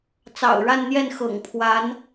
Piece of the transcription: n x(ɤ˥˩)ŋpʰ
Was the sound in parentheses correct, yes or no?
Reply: no